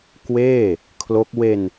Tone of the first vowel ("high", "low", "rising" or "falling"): falling